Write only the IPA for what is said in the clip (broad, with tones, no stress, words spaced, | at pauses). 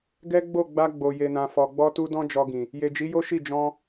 ɡɛ˦ɡ͡bo˦˨ɡ͡ba˧ ɡ͡bo˨je˨nã˨ fɔ˨ɡ͡bɔ˧tu˧ dɔ̃˦d͡ʒɔ˧ɡĩ˨ | je˨d͡ʒi˨˦ jo˦ʃi˦˨ d͡ʒɔ̃˧